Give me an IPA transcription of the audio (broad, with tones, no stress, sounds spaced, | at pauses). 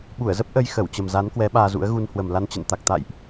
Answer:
ɓ u˧˩ ə̯ z ə˦˥ p̚ ʔ ə˧ j x ə˧˩ w t͡ɕ ə˨˩ m z a˨˦ n k w ɛ˨˦ ɓ aː˧ z ṵ˧˥ ə̯ ɣ u˧ n h w ə˨˩ m l a˧ n t͡ɕ ə̰˧˨ n t̪ a˨˩ k̚ t̪ a̰˧˨ j ʔ